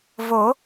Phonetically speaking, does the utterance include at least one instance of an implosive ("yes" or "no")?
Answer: no